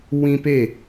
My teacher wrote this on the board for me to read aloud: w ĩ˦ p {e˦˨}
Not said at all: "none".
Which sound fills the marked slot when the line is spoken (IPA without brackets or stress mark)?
e˦˨